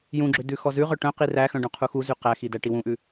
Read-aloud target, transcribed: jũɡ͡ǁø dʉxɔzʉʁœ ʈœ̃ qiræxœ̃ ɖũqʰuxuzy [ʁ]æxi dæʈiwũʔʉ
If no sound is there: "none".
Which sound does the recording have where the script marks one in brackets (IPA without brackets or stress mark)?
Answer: q